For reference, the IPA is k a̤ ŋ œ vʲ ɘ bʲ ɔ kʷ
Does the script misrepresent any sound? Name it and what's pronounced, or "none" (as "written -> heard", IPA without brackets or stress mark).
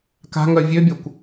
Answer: ɘ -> ø